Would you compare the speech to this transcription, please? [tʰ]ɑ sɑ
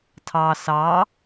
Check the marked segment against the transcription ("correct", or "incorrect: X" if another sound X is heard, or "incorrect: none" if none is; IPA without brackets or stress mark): correct